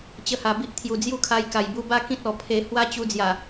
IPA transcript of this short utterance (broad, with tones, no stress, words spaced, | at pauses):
t͡ɕə˧ha˨˩bi˦ʔ t̪ʰju˨˩d͡zju˥˧kʰa˧j ka˨˩jbu˧ba˦ kĩ˦t̚ɔ˨˩pʰe˧ hwa˦t͡ɕu˧d͡zja˨˩